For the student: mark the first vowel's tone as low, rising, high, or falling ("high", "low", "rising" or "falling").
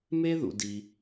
high